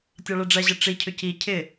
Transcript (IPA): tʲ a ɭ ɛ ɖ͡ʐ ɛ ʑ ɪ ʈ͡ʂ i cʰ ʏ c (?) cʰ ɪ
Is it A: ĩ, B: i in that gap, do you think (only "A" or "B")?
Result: B